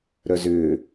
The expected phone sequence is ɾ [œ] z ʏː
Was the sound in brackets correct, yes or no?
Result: yes